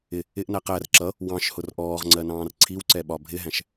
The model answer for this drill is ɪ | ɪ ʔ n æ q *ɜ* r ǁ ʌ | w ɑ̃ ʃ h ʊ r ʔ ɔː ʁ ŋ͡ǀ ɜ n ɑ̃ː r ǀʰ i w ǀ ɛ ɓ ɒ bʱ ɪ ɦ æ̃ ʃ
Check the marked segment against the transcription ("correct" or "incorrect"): incorrect